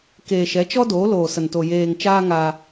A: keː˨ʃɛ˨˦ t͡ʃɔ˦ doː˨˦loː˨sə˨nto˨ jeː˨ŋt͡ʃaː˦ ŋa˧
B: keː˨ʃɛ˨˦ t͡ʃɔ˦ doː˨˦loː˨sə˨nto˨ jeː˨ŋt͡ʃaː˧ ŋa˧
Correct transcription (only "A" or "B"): B